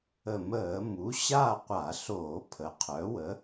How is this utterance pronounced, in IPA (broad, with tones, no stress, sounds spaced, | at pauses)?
ə˧˩˧ m əː˧˩˧ m u˩˥ ɕ a˥˧ qʷ a˧˩˧ ɬ oː˧˩˧ pʰ ə˩˥ qʰ œ˩˥ w ə˩˥